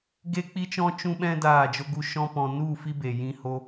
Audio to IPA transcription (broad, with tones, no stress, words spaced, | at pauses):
ɡe˦k͡pi˦t͡ʃɔ̃˦ t͡ʃũ˦ɓɛ̃˦ daː˦˨d͡ʒo˦ɡu˦ ʃɔ̃˦pɔ̃˧ nu˦˨ fi˦be˨ jĩ˧ho˧